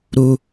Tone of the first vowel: high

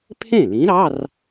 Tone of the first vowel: falling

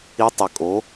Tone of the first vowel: rising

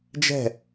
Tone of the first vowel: falling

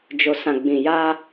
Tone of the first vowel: low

